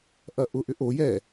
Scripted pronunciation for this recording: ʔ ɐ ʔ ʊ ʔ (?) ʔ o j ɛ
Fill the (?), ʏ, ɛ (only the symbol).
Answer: ʏ